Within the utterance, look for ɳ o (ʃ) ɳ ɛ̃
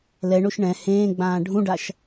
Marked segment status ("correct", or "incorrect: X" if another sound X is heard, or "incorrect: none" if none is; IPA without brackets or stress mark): correct